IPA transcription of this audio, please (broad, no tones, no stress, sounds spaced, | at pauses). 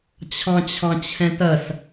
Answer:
t͡ɕʰ ɑ̃ t͡ɕʰ ɑ̃ t͡ɕʰ ɛ̃ t ɐ s